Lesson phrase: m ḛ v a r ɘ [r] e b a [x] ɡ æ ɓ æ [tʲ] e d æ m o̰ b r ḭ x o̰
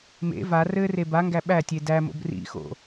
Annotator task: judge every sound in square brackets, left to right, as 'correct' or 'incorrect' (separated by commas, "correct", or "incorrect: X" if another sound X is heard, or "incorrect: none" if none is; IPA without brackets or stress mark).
correct, incorrect: ŋ, correct